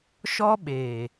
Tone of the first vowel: high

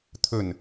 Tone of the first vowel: low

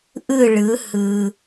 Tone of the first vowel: falling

